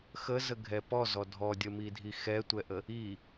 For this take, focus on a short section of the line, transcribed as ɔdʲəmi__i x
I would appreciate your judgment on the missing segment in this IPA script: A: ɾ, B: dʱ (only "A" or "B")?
B